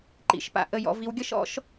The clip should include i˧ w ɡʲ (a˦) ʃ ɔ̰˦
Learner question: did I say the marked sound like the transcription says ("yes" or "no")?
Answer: no